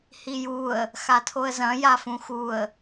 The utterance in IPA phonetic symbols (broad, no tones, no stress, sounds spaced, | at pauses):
h i j u ə̯ | x a tʰ o ə̯ z ɐ̃ j a f ũ x u ə̯